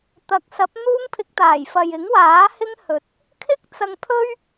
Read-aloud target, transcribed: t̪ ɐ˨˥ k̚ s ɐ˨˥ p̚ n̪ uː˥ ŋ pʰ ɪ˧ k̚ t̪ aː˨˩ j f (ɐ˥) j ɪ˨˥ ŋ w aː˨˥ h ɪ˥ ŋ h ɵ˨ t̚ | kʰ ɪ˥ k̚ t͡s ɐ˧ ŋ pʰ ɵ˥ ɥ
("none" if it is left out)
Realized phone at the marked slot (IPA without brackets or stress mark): ɐ˨